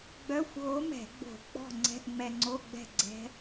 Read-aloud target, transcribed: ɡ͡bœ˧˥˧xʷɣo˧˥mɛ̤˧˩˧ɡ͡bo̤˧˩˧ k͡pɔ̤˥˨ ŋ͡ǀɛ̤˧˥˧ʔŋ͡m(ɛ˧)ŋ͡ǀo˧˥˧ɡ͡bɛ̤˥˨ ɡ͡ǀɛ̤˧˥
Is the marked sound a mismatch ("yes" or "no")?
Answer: no